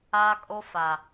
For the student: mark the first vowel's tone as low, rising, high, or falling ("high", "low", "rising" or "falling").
high